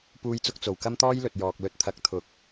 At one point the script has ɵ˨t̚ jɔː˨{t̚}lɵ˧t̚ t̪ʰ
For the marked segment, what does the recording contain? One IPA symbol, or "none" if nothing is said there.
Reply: k̚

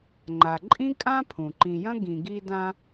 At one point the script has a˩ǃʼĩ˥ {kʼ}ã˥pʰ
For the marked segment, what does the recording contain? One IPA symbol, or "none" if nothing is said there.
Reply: kʼ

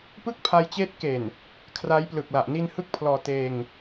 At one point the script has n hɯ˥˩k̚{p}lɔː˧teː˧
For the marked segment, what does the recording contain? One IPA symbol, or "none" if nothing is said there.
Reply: pʰ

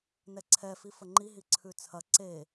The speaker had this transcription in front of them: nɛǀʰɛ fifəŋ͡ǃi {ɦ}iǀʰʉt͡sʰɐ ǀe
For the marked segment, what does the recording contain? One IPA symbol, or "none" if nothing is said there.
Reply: ɦ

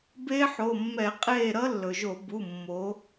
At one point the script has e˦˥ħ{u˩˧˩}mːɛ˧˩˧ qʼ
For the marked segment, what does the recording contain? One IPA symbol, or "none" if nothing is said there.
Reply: o˩˧˩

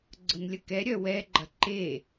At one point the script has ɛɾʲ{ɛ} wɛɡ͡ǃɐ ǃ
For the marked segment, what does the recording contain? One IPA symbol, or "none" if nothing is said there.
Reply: œ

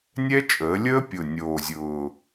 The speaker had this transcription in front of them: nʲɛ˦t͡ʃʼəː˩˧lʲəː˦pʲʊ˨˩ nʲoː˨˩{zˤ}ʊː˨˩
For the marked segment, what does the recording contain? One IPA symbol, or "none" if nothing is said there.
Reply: zʲ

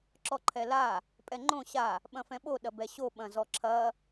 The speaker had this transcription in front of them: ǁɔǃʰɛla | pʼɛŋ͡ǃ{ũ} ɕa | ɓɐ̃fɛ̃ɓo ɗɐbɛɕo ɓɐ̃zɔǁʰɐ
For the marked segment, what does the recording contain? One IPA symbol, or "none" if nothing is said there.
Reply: õ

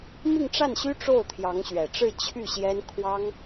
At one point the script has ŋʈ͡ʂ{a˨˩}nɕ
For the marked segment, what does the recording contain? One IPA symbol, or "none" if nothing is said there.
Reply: a˥˩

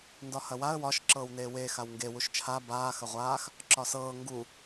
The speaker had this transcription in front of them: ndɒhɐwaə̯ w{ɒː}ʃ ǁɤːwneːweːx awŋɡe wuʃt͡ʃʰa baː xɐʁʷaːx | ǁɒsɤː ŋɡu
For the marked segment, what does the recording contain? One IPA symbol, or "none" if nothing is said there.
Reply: ɒ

